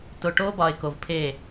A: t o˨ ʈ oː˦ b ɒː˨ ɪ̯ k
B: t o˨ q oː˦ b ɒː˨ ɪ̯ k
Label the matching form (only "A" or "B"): A